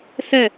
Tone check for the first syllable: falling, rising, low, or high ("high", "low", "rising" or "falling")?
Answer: falling